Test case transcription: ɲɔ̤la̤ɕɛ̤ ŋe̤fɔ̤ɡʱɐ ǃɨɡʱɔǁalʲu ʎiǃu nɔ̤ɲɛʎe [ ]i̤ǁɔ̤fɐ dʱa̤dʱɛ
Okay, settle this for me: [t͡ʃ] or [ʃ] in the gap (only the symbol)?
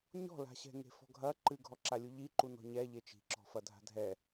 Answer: t͡ʃ